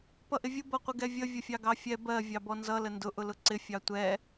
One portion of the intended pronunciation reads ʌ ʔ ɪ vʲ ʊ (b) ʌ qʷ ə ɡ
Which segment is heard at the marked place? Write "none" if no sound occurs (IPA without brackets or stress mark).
b